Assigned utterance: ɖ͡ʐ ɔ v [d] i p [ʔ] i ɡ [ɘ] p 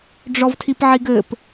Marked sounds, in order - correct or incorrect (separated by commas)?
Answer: incorrect, incorrect, correct